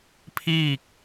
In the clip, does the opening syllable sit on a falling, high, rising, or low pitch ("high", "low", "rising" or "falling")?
falling